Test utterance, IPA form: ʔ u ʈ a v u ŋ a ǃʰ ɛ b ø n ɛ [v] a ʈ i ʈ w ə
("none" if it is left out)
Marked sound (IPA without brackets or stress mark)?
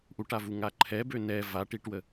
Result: v